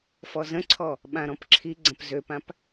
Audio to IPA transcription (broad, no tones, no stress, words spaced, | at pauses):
fɔzə̃ǀʰɔ | ɓãɾɔ̃pǁʰiɡ͡ǀə̃p zøpãp